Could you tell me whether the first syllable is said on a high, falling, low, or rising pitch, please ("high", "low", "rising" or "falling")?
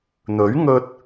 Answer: rising